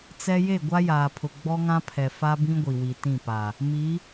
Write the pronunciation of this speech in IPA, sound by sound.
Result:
t͡sɛ˦ je˦˨ɡʷa˦jaː˨pʰʊ˨ ɡ͡bɔ˦ŋã˦pʰɛ˨ fa˦bĩ˦ɡʷi˨ wi˨tĩ˦˨pa˨ | mi˨˦

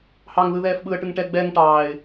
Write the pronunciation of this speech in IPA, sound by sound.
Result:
hɑŋðɯ ðɛːfɓɯə̯ʈɯŋ ʈɛ ɡ͡bɛŋ ʈɑːɪ̯

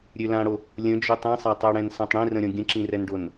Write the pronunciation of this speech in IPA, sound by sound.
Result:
ɾʲølãɽo | lʲə̃d͡ʒøtˤ ĩsˤatˤøɽɛ̃n sãtˤɽĩrə̃ɾʲɔ̃ ɡʲə̃ǁĩrɛnɖon

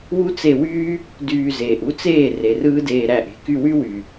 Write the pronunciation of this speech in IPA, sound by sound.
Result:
wu˦t͡se˧wyː˦ | dyː˧zeː˨ʔ u˦t͡seː˦˨ re˨rɯː˦deː˧ ɾæ˦˨ʔe̤˦ ky˧wy˦ wy˨

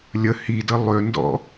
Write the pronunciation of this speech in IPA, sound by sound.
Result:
lʲə hidə lˠʏndɔ̰

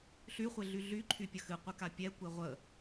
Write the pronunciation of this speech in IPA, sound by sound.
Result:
ɬyχʷeɮy ɮyǃʰypʲə xɨqʷɨka pʲɛkʷe ʁʷə

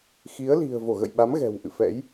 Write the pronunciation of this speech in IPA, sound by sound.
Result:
xi˨˦ə̯li̤˨˩ə̯ vo˧˩ɣə̰˧˨jɓa˨˦mɣɛ̤˨˩w ʔɨ̰˧˨fɛ̰˧˥j

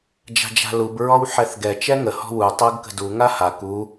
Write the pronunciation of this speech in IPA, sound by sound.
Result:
d͡ʒa̤d͡ʒa̤lub ɹɔwħɛθɡɛ t͡ʃɛŋə hɔ̤wu tˤɤɡkə̤du ŋaha ku

